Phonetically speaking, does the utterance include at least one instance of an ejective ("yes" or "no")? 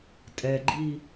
yes